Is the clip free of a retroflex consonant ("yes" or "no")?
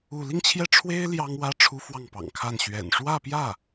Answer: no